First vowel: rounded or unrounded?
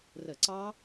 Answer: unrounded